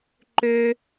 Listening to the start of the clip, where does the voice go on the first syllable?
high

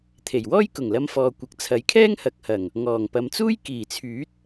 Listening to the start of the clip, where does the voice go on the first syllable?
low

